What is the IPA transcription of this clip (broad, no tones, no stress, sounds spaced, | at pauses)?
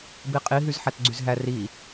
b i qʼ i ɦ y z ħ æ t ɡ͡ǀ y z ɦ æ r i